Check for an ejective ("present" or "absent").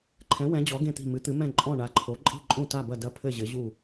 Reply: present